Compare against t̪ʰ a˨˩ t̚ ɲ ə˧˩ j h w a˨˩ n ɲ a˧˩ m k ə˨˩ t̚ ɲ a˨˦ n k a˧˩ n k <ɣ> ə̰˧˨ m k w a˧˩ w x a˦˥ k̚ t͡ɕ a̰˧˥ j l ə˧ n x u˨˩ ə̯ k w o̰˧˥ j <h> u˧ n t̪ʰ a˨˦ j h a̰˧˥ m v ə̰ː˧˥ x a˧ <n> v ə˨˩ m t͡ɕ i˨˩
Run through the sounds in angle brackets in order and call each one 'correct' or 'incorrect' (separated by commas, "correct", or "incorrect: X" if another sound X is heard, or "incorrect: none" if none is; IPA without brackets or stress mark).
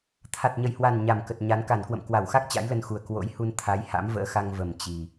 incorrect: w, correct, incorrect: ŋ